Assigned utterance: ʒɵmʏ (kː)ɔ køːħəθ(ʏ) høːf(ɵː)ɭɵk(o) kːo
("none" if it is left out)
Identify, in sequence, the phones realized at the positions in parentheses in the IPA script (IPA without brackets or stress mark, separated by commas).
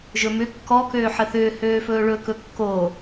kː, ʏː, ɵː, ɵ